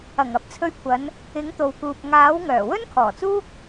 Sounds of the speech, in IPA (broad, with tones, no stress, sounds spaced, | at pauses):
ɐ˨˩ ŋ ɐ˨˥ p̚ t͡sʰ ɵ˧ ɥ kʷʰ ɐ˨˧ n | ɪ˨˥ ŋ t̪ o˨ w k uː˨ p̚ ŋ aː˨˥ w ŋ œː˨˩ w ɵ˥ n kʰ ɔː˨˩ t͡s uː˥ k̚